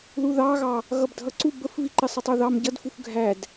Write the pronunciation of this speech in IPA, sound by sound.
ð u ð ɑ ɣ ɑ | ɣ ʌ b dʱ ʌ ǀ u b ə f v i ǃ ɪ sˤ ʌ tˤ u ð ɑ m ɟ ʌ d f u f ɡʱ æ d

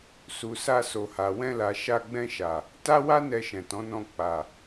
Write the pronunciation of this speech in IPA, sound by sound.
s u˨ s a˧ s o˨ h a˨ w ɛ̃˧ l a˨ ʃ a˧ ɡ͡b ɛ̃˧ ʃ a˨ | t a˦ w a˦ n ɛ˧ ʃ ɛ̃˨ t ɔ̃˨˦ n ɔ̃˧ k͡p a˨

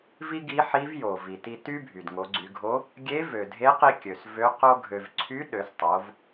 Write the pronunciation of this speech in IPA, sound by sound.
v i˥ ɡ i˧˥ ħ i˧˥ v j o˩ v i˩ t i˧ t y˥ bʱ y˩ d ŋ o˩˧ ɡ͡ǀ y˩˧ ɡʱ o˧˥ | ɡʲ e˧˥ v ø˩ dʱ e˧˥ q i˧ kʲ ø˩ s v ø˧˥ q o˥ ɡʱ ø˧ v ǀʰ y˧˥ ɗ ø˩˧ s tˤ o˩˧ v

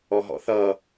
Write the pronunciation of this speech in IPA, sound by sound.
ɔ ɦ ɔ̰ θ ʌ

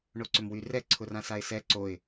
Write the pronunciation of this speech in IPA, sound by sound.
ɳ o ǀ ʏ m w y r ɛ ǀʰ ʊ r ã s a ɪ̯ s ɛ ǀ o ɪ̯

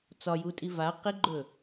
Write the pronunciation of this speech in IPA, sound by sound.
t͡s ɒ j u tʼ i v a q i ɡ͡ǃ ɵ

